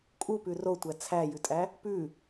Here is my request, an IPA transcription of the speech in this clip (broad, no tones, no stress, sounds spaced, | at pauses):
kʼ u p ʉ r o tʷ æ t͡sʰ æ j ʉ tʼ æ | p ʉ